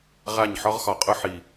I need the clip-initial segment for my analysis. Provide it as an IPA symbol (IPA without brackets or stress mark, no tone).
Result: ʁ